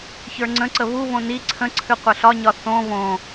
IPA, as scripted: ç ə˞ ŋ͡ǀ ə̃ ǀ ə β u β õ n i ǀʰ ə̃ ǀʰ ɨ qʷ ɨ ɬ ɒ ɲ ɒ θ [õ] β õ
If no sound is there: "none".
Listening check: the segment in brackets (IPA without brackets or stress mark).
õ